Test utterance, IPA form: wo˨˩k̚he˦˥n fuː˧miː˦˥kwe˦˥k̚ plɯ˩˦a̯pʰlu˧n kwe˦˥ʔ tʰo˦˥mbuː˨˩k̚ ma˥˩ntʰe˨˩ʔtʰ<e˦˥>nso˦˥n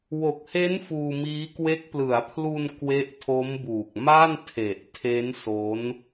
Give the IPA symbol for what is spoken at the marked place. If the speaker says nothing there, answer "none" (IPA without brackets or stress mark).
e˦˥